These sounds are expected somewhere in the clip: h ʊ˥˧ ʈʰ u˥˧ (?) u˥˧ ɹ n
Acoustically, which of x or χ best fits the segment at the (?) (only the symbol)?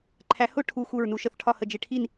x